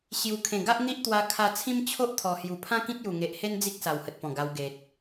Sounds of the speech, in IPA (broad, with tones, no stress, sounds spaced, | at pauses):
ɕ j u˨˩ kʰ ẽ˨˩ ɡ a˦ ʔ n̪ i˦ ʔ t̪ w a˧ kʰ a˧ t͡sʰ ĩ˦ m t͡ɕʰ o˦ ʔ t̪ʰ ɔ˨˩ h j u˨˩ pʰ ã˦ k ĩ˦ t̚ j u˨˩ ŋ e˨ ʔ h e˦ n d͡z i˦ k̚ s a˨˩ w h ə˨ t̚ p ɔ̃˨˩ ɡ a˧ w ɡ e˨ t̚